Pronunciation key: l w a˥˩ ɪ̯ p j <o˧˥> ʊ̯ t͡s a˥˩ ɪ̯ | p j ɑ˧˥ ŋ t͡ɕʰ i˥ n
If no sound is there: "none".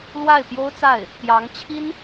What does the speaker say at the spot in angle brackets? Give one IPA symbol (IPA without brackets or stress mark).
o˥